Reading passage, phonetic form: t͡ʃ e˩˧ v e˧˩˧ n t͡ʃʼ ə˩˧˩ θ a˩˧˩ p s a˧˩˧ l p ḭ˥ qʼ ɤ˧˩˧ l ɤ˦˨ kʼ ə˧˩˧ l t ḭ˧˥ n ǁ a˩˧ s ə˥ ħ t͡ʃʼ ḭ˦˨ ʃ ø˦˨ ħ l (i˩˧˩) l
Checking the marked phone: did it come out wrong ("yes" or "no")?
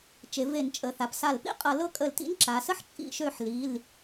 no